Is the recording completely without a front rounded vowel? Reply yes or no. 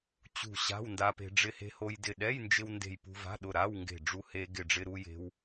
yes